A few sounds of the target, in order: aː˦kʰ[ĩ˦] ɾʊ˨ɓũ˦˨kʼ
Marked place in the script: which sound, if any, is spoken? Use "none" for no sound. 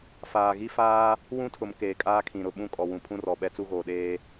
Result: ĩ˨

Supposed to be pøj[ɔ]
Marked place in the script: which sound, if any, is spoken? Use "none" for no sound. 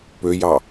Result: ɑ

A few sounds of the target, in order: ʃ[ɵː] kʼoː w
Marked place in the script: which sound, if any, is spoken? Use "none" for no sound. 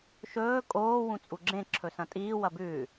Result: ɵː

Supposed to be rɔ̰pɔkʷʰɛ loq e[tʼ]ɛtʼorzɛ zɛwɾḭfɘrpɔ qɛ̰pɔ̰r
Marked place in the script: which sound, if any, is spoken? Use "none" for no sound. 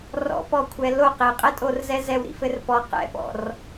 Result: qʼ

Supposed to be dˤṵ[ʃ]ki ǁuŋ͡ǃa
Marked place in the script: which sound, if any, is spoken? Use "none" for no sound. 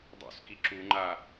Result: s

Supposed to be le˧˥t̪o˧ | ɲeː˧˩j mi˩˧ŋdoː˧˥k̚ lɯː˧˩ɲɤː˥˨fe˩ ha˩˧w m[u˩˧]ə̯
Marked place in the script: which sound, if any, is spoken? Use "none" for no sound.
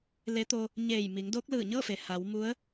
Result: u˧˥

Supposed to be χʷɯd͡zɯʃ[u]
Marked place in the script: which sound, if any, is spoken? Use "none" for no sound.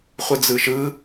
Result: ɯ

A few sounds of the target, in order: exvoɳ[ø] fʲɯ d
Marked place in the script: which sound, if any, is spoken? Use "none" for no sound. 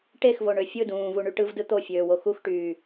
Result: ø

